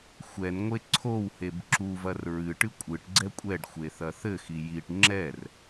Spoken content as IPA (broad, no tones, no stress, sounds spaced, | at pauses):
xʷ ɛ n ŋʷ e ǀʰ o w h e b ǁ u v ɐ r ɹ ɨ ʈ ɨ kʷʼ ɨ ʈ ɡ͡ǀ ɛ kʷʼ ɛ ɖ xʷ e θ ɐ θ ɘ x i j i ʈ ŋ͡ǁ ɛ r